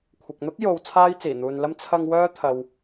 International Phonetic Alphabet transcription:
kʷʰ ɪ˨ k̚ n̪ ʊ˥ k̚ j o˧ w t͡sʰ aː˥ j t͡s iː˨˩ n̪ uː˨ n l ɐ˥ m t͡sʰ ɐ˧ ŋ w œː˥ t̪ʰ ɐ˨ w

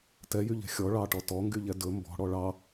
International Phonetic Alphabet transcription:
t ɛ j y ʎ ɛ̤ xʲ ɔ ɭ ɑ ʈ ɔ t ɔ ŋ ɡ y ʎ ɛ d ɵ m b ɔ̤ ɽ ɔ ɭ ɑ

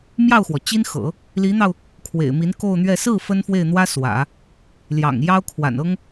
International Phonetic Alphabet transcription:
m j ɑ˥˩ ʊ̯ x w ɔ˩ t͡ɕ i˥ n x ɤ̰˨˩˦ | l i˧˥ n̪ ɑ˧ ʊ̯ | kʰ w ḛ˨˩ ɪ̯ m i˧˥ n k o˥˧ ʊ̯ n̪ ɥ ɛ˥˧ s ɹ̩˥˩ f ə˥ n f w e˥˩ ɪ̯ n̪ w ä˥ s w ä̰˨˩˦ | l j ɑ̰˨˩ ŋ j ɑ˥ ʊ̯ kʰ w a̰˨˩ n ɤ˥ ŋ

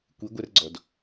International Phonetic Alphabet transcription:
kʷ i ɡʷ ɛ r ɡ͡ǀ ɔ d

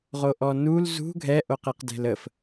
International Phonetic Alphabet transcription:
ʁ o ʔ ɔ n u l z ṳ ɡʱ ɛ ʔ o q e q d ɛ̤ l ə f

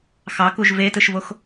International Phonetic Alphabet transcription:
x ɑ k u ʒ v e t ɯ ʃ v o x

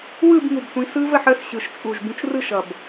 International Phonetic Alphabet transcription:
w ɯ˥˧ b ŋ u˨˩ b sʷ ĩ˨˦ s ɯ˦˥ v ə˥˧ ħ ə˦˥ s ɕ ɯ˨˩ ʃ t͡sʼ u˨˩ ʒ b ũ˨˦ t͡ʃ r ɯ˥˧ ʃ ʌ˨˩ b

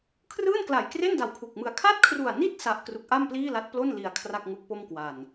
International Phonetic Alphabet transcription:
kʰ r ɯː˥˩ n k l a˨˩ j k r e˥˩ n d a˨˩ w kʰ u˨˩ k̚ m ɯ˧ a̯ kʰ a˥˩ t̚ kʰ r u˨˩ a̯ n i˥˩ t̚ s a˦˥ ʔ k r u˦˥ k̚ ʔ a˥˩ m p l iː˥˩ l a˦˥ t̚ p l o˥˩ n l i˧ a̯ kʰ r a˥˩ k̚ ŋ u˦˥ k̚ p o˥˩ m k w a˨˩ n

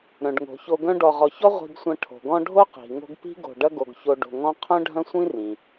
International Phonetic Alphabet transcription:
ɾ œ̃˩ ɖ ŋ o̤˩ ç o˨ ɡ œ̃˦ ɖ ɔ˨ ʁ ɔ˨ ç ɔ˥ ʁʷ i̤˦ ɡ sʷ ɐ̃˦ ʈʰ o̤˩ ɡ ɔ̃˦ ɖʱ o˥ q i̤˩ ŋ o̤˦ ɡ p i̤˥ ɡ o̤˨ ɖ ɐ˥ ɡ o˨ ɡ ç o˦ ɖ o̤˨ ŋ ɔ̃˥ qʰ œ̃˥ ɖʱ ɐ̃˥ sʷ ĩ˥ r ĩ˩

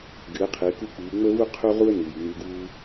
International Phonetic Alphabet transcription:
ɡ ɨ˩˥ ə̯ qʰ ɨː˩˥ k u˥ k͡p ɨː˩˥ ŋ͡m ə˥ v u˥ qʰ u˥ ʁ u˥ ə̯ n̪ ɨː˩ j ŋ͡m u˧ ɡ uː˥

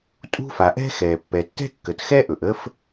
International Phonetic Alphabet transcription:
tʼ ṳ˥ f a˩ ʔ ɛ̤˥ x ɛ˩ pː ɛ˩ tː ɛ̤˥ kː ə˩ t x ɛ˥ ʔ ɵ˩ ʔ ə˥ f

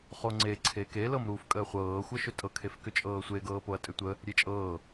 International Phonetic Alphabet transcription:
χ o ŋ͡ǀ e ǀʰ e k e l ɤ m ɾ uː f kʼ əː χʷ ɤː xʷ ɤ ʃ ʏ tʼ ɤ kʰ e f k ʏ t͡ʃʼ ɤː sʷ e ɡ ɤː p o ɐ̯ tʼ ʏ tʷ ə | ɾʲ e t͡ʃʼ ɤː

